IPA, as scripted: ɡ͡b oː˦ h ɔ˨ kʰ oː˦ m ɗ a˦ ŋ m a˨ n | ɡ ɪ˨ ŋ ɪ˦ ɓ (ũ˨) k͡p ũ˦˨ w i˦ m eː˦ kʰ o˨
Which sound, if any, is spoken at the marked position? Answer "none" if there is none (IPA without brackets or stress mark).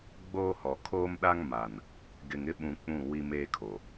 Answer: ũ˨